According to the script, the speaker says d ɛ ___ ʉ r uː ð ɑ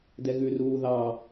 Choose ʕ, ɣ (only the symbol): ɣ